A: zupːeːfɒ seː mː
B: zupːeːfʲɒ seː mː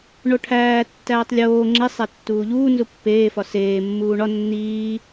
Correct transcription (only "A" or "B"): A